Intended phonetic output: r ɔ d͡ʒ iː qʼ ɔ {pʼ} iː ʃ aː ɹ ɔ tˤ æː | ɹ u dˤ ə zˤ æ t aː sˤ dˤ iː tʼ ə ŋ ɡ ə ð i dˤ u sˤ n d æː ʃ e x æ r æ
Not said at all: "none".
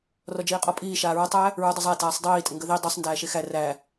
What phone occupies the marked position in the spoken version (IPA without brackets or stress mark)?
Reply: pʼ